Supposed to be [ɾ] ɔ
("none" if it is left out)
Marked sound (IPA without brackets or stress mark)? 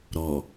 ɾ